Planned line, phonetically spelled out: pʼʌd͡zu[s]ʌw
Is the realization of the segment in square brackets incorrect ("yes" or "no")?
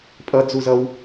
yes